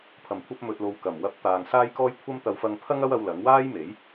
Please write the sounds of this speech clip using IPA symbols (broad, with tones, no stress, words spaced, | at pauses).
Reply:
pʰɐ˨˩mkʷʰɐ˧p̚ mɵ˨t̚lo˨w kɐ˨˩mwɐ˧p̚t̪aː˨ŋ saː˥jkɔː˥jkʷʰɐ˥m t̪ɐ˨˧wfɐ˧ŋ pʰɐ˥ŋɐ˥wɐ˧w lɐ˨˥ŋwaː˥jme˨˥j